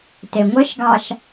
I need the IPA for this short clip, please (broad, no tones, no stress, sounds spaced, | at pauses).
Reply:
t e ŋʷ ɘ ʃ ɡ ɑ ʃ